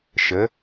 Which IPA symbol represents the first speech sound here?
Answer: ʃ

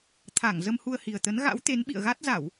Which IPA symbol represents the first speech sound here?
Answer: t̪ʰ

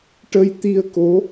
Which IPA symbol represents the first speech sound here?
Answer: ʈ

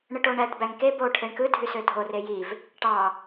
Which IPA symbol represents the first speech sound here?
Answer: ɳ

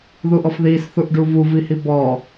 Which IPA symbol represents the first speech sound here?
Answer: ð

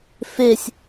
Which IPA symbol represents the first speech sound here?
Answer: f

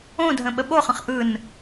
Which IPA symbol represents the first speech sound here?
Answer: õ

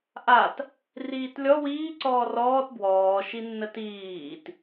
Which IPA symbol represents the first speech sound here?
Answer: ʔ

